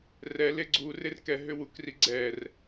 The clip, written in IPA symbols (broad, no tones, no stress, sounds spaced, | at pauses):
r ɛ l e ɡ͡ǀ u r e r k ɛ ɦ ʏ w u k r i ɡ͡ǀ ɛ r